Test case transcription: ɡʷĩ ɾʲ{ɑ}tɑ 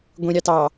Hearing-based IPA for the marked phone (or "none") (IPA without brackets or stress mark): ɑ